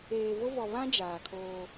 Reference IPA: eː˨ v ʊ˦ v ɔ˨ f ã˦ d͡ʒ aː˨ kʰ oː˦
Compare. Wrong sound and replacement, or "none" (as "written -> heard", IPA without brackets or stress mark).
f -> β